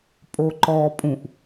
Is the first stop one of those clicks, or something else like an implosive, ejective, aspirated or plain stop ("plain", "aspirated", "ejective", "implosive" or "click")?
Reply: ejective